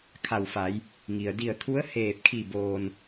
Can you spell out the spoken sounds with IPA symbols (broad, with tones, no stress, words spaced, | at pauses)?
kʰa˧˩wfa˩˧j | ŋi˩ə̯ di˧˩ə̯t̪ʰu˧˥ə̯ heː˧˩p̚kʰi˧˩ boː˩n